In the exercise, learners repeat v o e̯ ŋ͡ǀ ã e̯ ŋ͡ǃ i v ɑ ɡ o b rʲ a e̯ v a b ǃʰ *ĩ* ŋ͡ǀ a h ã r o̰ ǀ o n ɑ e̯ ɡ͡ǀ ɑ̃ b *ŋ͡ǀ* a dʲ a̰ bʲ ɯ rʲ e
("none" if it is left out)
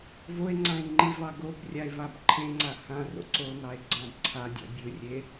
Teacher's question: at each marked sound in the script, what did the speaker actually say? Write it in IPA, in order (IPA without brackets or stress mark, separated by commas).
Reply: ẽ, ǀʰ